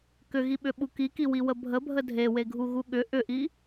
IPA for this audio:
k ʏ ɣ i ɓ ʏ ɓ u k i k i w i w ə bʱ ə bʱ ə dʱ e w e ɡʱ u ɣ u ɠ ʏ ʔ ʏ ʔ i

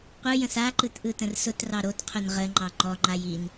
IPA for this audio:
qʷ ɯ j ə̃ s a ǃ ɯ t ʔ ɯ t ə̃ r s ʊ t r ɑ ɾ o t qʰ ʊ n ʁ ə ŋ͡ǃ ɑ ŋ͡ǃ ɔ ŋ͡ǃ a j i n

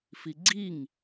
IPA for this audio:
f i ɡ͡ǀ i ŋ

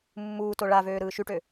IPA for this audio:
mː uː t o ɭ a v øː ɾ ɯː ʃ y ʈ ø

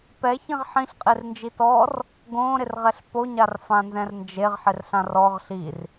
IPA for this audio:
p ɛ ç ĩ ʁ ħ ĩ ɬ qʼ e r n d͡ʒ i t ɔ r | ɡ õ ɾ ɪ r ʁ ɛ ɬ p o ɲ a r f ã n z ɛ̃ r n d͡ʒ e ʁ ħ ɪ r ɬ ã r ɔ ʁ ɬ i r

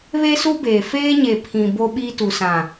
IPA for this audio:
β e˦ s u˦ b eː˨ f eː˦ ɲ e˨ pʰ ĩ˨ b o˦ ɓ iː˦ t u˨ s ã˨

